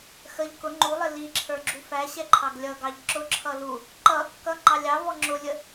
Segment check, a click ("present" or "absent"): present